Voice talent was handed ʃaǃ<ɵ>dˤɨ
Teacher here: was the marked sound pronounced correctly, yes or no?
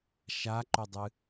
yes